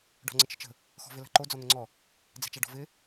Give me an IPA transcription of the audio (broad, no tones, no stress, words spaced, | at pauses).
ɖɔ̤ŋ͡ǀɪt͡ʃə̤t͡ʃə̤ | xɔ̤vɪla̤ǃo d͡zɔn̪əŋ͡ǀɔ | d͡zɛ̤t͡ʃaɖɔ̤vɪ